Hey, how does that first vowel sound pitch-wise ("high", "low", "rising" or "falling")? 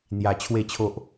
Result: low